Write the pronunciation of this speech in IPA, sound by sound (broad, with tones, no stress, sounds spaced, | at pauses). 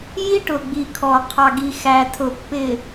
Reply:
j i˦ ʈ ʊ˨ ɡ͡b i˨ kʰ ɔ˨ qʰ ɑ˨ ɡ i˨ x æ˨ tʰ ʊ˨ pː ɪ˨